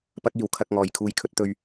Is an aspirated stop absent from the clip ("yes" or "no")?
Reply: no